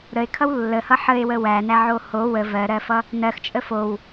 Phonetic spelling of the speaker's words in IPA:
ɾ ə e̯ kʰ ʌ w lː ə h ʌ ħ ə e̯ w ə w æ n æ ʕ o h o w ə v ɜ ɾ ɜ f ʌ | n ɜ x t͡ʃʼ ə f o w

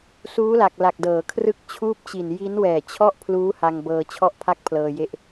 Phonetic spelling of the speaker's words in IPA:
s uː˦˥ l a˨˩ k̚ l a˨˩ k̚ d ɤː˩˦ kʰ r ɯ˥˩ k̚ t͡ɕʰ uː˥˩ p̚ t͡ɕ i˨˩ n j i˦˥ n w ɛː˨˩ t͡ɕʰ ɔ˥˩ ʔ pʰ l uː˦˥ h a˧ ŋ b ɤː˧ t͡ɕʰ ɔ˥˩ ʔ pʰ a˥˩ k̚ pʰ l ɤː˧ j e˦˥ ʔ

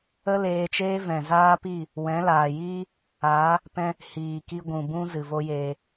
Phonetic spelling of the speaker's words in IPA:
ə˦ l eː˧ t͡ʃ eː˦ v ɛ̃˨ z aː˦ p i˦˨ | w ɛ̃˨˦ l aː˨ j iː˦ | aː˨˦ | p ɛ̃˧ | h iː˨ k i˦ ɡʷ ũ˨ b ũ˦ z ɨ˨ v o˦ j eː˧

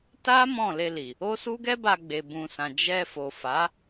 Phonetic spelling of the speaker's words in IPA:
t a˦ m ɔ̃˦˨ l e˧ l i˨ | o˦ s u˦ ɡ ɛ˦ b a˧ ɡ͡b e˨ b ũ˨ s ã˨ d͡ʒ ɛ˧ f o˨ f a˨˦

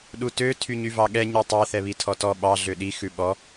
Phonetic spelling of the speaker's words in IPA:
ɗ u t ø tʰ y ɲ y v ɑ ɠ ɛ ɲ i tˤ ɛ θ ɛ β i tʰ ɔ t ɔ ɓ ɑ ɮ ø ɗ i x ʉ ɓ ɔ

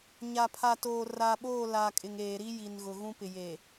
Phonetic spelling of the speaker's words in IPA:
ɲ a˨ pʰ a˨ t oː˨ r a˨ ɓ oː˦˨ l a˨ kʼ ɪ˨ ŋ eː˨ ɾ i˦ j i˨ n ɣ ʊ˨ ɣ ũ˦ p ɪ˨ j e˨

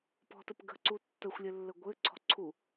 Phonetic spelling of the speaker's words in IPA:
p ɔ̤ t ə p ɡ ə̤ ǀ u tː ə xʷ lʲ ɘ lː ə ɡʷ ɘ ǀʰ ɔ̤ ǀʰ u

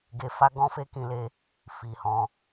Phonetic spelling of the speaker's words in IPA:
ɡ e˧ f a˦ ɡ ɔ̃˦ f e˦ k ĩ˧ l e˦ | f i˨ h ɔ̃˧

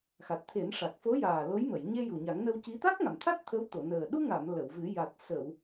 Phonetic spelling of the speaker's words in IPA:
x a˨˩ t̚ t̪ʰ e˨˩˦ n ʂ a˨˩ k̚ f o˧˥ j aː˨˩ l o˧˥ j m ə˨˩˨ j ɲ e˧ j u˨˩ ɲ a˨˩˦ ŋ n ə˧ w c i˧˥ t̪ a˦˥ k̚ ŋ a˨˩˨ m t̪ʰ a˦˥ t̚ t̪ʰ ə˧˥ w t̪ o˨˩˨ n əː˨˩ ɗ u˧ ŋ a˨˩˨ m l ə˨˩˨ w v ɨ˨˩˦ j a˨˩ t̚ s ə˨˩˨ w

